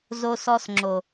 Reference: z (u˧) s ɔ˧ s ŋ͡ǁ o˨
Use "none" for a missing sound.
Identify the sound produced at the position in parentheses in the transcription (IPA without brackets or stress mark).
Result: o˧